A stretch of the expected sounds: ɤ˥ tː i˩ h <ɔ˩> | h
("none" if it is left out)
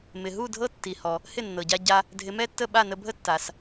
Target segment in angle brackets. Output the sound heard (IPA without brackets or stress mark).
ɔ˩